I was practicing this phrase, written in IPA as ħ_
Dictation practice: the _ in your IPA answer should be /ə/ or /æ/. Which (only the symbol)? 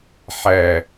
æ